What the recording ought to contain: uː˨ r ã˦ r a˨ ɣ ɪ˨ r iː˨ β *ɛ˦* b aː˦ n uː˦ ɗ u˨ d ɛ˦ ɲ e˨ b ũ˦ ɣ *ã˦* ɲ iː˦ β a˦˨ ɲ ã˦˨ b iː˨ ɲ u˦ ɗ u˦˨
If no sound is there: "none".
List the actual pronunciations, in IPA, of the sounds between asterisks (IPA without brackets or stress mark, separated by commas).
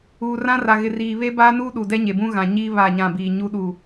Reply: e˦, ã˨